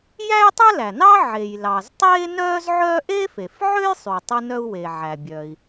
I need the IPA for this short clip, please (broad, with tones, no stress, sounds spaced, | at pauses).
j æ˥ j tˤ œ˥ l æ˩ n ɑ˥ ʕ e˩ j l ɑ˩ z tˤ eː˥ n œː˥ z ʕ œː˥ ʔ e˥ f e˩ f ʕ ø˥ j sˤ y˩ tˤ e˥ n œ˥ u̯ w e˩ ʕ æ˩ bʲ œː˩ i̯